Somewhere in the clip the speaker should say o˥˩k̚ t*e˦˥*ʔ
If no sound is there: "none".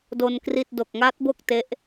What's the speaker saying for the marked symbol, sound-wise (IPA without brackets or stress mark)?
e˦˥